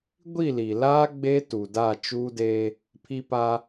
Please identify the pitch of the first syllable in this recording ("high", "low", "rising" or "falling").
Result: falling